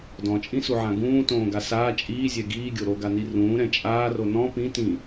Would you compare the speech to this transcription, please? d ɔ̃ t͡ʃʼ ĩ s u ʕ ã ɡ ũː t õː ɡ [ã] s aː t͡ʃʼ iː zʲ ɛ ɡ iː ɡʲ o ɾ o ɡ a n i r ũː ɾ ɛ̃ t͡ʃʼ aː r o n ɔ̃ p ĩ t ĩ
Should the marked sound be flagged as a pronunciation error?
yes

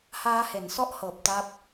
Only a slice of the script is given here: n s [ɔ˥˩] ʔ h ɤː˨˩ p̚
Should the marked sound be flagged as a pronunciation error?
no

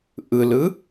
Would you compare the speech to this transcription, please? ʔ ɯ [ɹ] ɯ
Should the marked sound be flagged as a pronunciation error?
yes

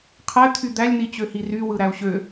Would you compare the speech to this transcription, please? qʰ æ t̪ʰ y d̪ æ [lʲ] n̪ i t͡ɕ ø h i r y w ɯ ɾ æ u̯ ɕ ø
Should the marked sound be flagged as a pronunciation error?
no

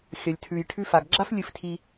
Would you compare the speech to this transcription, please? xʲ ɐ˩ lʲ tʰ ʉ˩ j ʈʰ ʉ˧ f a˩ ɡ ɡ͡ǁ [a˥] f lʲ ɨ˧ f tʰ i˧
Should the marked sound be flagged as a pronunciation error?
no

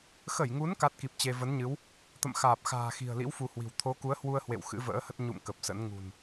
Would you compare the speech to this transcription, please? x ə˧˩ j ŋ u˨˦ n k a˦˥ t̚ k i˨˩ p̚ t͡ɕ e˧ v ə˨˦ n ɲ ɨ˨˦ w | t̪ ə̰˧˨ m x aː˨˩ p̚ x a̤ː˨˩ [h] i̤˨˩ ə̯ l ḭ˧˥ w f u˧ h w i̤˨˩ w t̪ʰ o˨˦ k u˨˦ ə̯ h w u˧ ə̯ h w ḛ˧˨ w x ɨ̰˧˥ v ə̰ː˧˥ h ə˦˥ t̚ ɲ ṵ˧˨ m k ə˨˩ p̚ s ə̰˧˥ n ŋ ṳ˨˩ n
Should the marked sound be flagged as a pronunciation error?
yes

